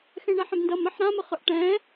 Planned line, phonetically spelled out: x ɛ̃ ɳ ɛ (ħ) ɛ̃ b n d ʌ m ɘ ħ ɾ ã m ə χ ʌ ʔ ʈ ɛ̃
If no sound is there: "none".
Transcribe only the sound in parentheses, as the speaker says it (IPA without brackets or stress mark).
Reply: ħ